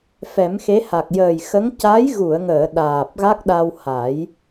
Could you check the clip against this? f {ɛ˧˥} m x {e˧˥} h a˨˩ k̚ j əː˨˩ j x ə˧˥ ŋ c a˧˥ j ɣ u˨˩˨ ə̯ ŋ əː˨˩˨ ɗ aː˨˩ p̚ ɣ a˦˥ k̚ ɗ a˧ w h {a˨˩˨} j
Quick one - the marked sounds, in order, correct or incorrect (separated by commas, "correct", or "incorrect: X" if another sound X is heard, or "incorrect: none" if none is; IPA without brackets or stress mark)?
incorrect: ɛ˨˩˦, correct, incorrect: a˨˩˦